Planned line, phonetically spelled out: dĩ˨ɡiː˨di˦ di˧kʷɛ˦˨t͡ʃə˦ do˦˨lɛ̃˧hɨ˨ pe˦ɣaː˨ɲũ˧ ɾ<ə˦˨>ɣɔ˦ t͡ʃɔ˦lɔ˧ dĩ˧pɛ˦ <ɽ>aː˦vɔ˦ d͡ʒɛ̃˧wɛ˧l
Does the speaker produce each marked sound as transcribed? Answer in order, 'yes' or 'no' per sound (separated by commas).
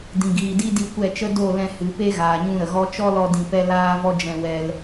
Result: no, no